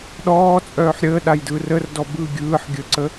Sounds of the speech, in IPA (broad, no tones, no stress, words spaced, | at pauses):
ɗɔːt͡sʼœːħ ɾʲəːɗajdɯːr ərdɔ bɯ ɡʲɯːħ ɡʲəǀə